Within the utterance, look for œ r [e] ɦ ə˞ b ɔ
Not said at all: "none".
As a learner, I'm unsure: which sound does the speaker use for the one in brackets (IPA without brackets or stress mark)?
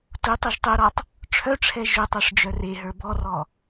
e